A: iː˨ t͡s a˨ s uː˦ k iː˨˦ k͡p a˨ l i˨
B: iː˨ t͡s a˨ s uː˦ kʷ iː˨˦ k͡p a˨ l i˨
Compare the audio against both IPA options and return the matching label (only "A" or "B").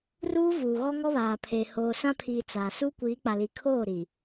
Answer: B